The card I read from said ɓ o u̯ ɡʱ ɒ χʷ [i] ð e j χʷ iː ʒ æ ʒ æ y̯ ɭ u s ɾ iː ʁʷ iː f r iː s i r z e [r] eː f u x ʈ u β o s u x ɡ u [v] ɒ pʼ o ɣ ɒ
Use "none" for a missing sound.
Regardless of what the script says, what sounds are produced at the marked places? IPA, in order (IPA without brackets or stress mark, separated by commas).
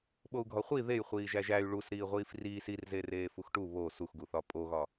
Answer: i, r, θ